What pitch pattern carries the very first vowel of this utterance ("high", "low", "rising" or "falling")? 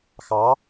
rising